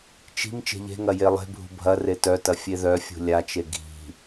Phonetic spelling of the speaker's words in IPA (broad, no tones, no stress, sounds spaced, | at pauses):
t͡ʃ i̤ m t͡ʃ e̤ ʎ e̤ ŋ ɐ j e lˠ e̤ bʱ ṳ bʱ ɐ r e t œ t ɐ fʲ e ð œ fʲ ṳ lʲ a t͡ʃ e ɡʱ i̤